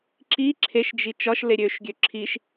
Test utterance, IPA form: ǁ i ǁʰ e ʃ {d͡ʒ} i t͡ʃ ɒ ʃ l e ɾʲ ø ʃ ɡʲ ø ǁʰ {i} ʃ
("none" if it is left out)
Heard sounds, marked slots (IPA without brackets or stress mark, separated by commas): d͡ʒ, i